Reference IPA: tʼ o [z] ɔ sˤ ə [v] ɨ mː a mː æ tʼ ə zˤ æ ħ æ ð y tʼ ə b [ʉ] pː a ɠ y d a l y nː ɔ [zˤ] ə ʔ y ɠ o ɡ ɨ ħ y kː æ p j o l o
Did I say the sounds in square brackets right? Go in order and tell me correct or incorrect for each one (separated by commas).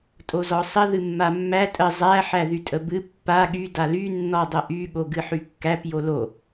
correct, incorrect, incorrect, incorrect